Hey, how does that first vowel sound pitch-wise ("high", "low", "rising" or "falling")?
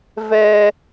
high